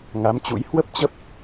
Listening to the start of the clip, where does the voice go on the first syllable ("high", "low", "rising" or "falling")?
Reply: rising